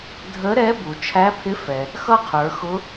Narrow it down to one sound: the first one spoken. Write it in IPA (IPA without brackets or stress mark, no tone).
dʱ